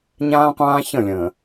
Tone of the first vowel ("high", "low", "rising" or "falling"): high